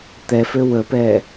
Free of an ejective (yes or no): yes